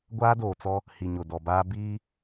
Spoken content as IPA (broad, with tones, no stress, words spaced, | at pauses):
ɡʷaː˦doː˨t͡sɔ˦ | hi˨ɲʊ˨dɔ˨baː˦ biː˦